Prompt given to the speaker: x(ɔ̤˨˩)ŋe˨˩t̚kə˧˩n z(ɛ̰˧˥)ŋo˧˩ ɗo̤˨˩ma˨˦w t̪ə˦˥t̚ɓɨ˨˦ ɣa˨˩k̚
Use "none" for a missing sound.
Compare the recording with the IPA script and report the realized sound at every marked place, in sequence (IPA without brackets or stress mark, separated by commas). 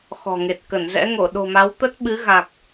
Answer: ɔ̤˨˩, ɛ̰˧˥